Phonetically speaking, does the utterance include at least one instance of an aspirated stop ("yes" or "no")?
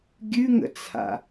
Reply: yes